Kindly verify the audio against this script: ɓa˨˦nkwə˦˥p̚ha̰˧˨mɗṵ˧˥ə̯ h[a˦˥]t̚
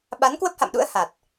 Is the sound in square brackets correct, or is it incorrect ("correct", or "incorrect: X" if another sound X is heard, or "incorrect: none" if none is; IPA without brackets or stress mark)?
incorrect: a˨˩